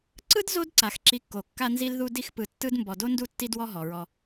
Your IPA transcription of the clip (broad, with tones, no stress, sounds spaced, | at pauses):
ǀ ɯ˥ d z o˥ d ǀ a˩ x ǁ i˨ kː o˩ kː a˦ n z i˦ l ð u˦ d i˦ x p ɯ˨ tː ɯ˥ d m b ɔ˨ d o˥ n d u˦ tː i˦ d w ɔ˦ ɦ ɔ˩ ɹ ɔ˨